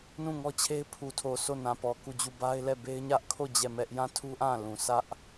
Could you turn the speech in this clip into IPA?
n ũ˦˨ ŋ ɔ˦ t͡ɕʰ e˦ ɪ̯ pʰ u˨ tʰ o˨ sʰ o˦˨ n ã˨ p ɔ˨ k u˦˨ d͡ʑ u˦˨ b a˦ ɪ̯ l ɛ˦˨ b e˦ ɪ̯ ɲ ä˦ ʔ kʰ o˦˨ d͡ʑ ɛ˦˨ m ɛ˦ ʔ j ã˦˨ tʰ u˦ ʔ ã˦˨ l ũ˨ s ä˦ ʔ

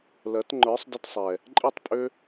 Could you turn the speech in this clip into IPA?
l ɜ˨˦ t ŋ͡ǃ ə˞˨˦ sˤ d ə˧ t sˤ ɛ˨ | ǃʼ i˦˨ tˤ pʼ ø˦

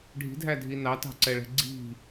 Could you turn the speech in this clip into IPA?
ɖʱ i̤ dʱ æ dʱ i n ɑ t ɑ̤ ǀ ɛ ɭ ɛ̤ ɡ͡ǀ i̤

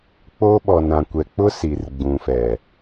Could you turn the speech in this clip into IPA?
k͡p o˦ ɓ ɔ˨ n ã˨ kʷ ɛ˨ k͡p ʊ˦ s i˨ r ɡ͡b ũ˨ f ɛ˨

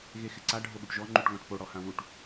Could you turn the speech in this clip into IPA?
ɣ e x ɪ ǀ a ɖʱ o ɠ u ʈ ʒ ɔ ŋ͡ǃ u ʈ ŋ ɔ̃ ʈ p o ɽ ɔ h ã w u ʈ

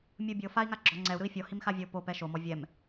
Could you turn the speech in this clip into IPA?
mʲ ɯ bʲ ɤ f a i̯ ŋ a ɡ͡ǁ ɔ ŋ͡ǀ ɛ u̯ ɾ ɯ i̯ fʲ ɔ h i m x a vʲ ɤ p o p ɛ ʃ o m ɔ vʲ ɛ m

